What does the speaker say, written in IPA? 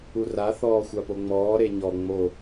u r a θ ɔː xʷ a p o ŋ͡m ɔː ɾ e ɲ ɔ ŋ͡m o

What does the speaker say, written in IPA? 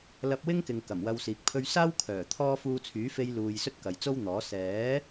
l ɐ˧ p̚ w ɪ˥ ŋ k ɪ˨ ŋ k ɐ˨˩ m w ɐ˧ w s iː˨ k̚ pʰ ɵ˧ ɥ s aː˥ w kʰ œː˨˩ t̪ʰ ɔː˥ f uː˧ t͡sʰ yː˨˥ f e˧ j l uː˨ j s ɵ˥ t̚ k ɐ˨ j t͡s o˥ w n̪ ɔː˨˥ s ɛː˨˥

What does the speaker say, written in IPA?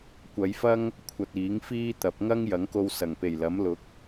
kʷ ɐ˨˧ j f ɐ˥ ŋ | kʷʰ ɐ˧ t̚ iː˨˥ ŋ f iː˥ t̪ ɐ˨˥ p̚ ŋ ɐ˥ ŋ j ɐ˨˥ ŋ k o˧ w s ɐ˨˩ ŋ p e˨˩ j l ɐ˨˥ m l ʊ˨˥ k̚

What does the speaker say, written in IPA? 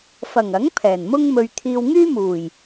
f ɐ˨˩ ŋ ɐ˨˥ ŋ pʰ ɛː˨˩ n m ʊ˥ ŋ m ɵ˧ ɥ t̪ʰ iː˧ w ŋ yː˥ m uː˨˩ j

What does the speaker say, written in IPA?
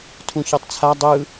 tʰ ũ ç ɤ tˤ t͡sʰ a dˤ ɯ

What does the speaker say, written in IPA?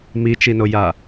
m i t͡ʃ i n o j a

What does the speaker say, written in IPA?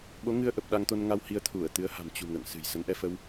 ɓ o˨˦ ŋ ɨ˧ ə̯ ʔ ə˨˩ p̚ ɗ a˧ ŋ t̪ o˧ n ŋ a˧ w h i˧ ə̯ t̪ʰ u˧˩ ə̯ t̪ ɨ˨˦ ə̯ h a̤˨˩ m t͡ɕ ṳ˨˩ ŋ ə̰ː˧˨ ŋ s ɨ̤˨˩ j s ə˨˦ n ʔ ɛ˧ f ə˧ w

